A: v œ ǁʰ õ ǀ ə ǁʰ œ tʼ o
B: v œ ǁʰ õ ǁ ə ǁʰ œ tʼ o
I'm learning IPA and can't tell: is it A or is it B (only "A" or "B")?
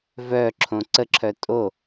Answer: A